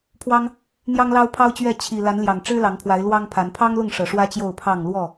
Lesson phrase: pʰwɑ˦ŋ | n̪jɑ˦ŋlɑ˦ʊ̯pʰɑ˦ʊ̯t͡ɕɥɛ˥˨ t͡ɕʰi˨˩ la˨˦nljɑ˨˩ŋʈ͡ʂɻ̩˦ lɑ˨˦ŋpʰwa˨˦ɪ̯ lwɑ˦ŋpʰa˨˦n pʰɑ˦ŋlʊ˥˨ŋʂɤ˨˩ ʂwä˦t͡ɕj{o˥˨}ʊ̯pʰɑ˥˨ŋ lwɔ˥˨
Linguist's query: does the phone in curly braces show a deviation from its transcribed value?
no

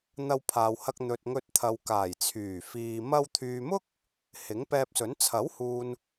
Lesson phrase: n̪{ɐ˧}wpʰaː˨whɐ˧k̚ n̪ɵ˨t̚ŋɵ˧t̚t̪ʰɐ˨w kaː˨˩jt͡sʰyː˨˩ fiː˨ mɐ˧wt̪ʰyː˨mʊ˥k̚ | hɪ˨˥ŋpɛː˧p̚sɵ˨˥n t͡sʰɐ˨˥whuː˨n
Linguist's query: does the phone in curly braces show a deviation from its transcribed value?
no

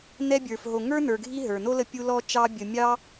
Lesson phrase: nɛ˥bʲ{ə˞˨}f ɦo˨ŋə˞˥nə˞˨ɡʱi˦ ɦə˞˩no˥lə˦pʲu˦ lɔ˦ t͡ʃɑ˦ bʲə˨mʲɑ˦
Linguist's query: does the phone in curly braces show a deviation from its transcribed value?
no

